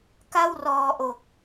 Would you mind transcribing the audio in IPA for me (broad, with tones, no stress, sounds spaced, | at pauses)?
k a˥˩ w r ɔː˧ ʔ o˨˩ k̚